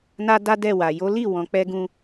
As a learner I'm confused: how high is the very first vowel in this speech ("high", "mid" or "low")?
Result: low